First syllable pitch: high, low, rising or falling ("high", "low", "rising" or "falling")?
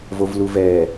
low